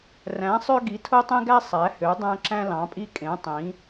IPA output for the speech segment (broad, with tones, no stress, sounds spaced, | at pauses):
r æ̃˨˦ sˤ ø˦ ɡ i˨˦ tʰ o˦ tˤ ẽ˦ ɡ æ˦ sˤ æ˨˦ h ø˨˦ dˤ æ̃˦ ǁ æ̃˦ l ɑ̃˨˦ pʼ i˦ kʼ ẽ˨˦ tˤ ĩ˨˦